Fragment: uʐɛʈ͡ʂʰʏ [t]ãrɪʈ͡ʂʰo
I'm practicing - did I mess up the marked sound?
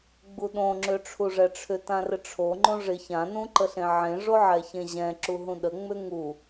no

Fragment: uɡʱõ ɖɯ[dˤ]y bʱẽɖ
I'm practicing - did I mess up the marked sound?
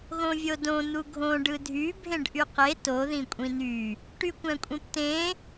yes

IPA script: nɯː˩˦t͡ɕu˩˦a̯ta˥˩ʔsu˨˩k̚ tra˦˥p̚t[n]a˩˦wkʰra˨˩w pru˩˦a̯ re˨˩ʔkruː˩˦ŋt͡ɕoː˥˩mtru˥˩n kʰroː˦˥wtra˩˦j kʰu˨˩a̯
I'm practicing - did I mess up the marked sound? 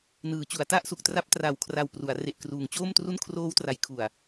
yes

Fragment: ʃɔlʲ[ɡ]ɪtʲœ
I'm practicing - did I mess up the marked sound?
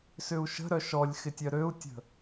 yes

